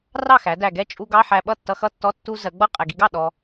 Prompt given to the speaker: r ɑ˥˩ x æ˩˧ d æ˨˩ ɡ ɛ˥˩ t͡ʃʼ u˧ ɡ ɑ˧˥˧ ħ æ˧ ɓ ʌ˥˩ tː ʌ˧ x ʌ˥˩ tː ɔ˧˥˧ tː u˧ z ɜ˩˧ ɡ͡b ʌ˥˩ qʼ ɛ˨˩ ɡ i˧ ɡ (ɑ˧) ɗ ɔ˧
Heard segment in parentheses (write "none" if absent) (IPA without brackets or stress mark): ɑ˥˩